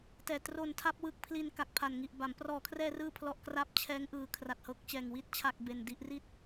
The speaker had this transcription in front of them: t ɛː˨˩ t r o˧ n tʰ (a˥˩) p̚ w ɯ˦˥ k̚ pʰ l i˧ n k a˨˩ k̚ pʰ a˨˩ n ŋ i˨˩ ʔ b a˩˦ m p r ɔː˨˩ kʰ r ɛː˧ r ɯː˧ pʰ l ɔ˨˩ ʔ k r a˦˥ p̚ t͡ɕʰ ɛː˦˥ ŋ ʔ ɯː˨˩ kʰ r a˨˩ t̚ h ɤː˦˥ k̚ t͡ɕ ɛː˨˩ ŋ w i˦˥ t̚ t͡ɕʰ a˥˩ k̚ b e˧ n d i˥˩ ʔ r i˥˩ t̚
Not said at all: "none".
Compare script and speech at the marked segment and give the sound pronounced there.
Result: a˥˩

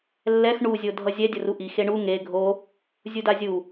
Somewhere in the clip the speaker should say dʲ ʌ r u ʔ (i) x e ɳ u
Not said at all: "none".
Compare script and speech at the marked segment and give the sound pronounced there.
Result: i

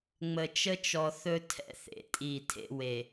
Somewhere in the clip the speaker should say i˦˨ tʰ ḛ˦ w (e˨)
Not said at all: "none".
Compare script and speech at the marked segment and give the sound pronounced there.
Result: e˨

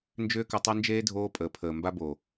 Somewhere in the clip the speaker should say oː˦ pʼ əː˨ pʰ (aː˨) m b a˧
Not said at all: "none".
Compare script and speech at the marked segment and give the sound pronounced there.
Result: əː˨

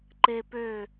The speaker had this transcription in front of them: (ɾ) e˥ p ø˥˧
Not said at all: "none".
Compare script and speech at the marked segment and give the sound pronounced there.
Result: ǃ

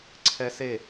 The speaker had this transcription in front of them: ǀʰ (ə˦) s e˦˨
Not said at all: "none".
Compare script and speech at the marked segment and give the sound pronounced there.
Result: ɛ˦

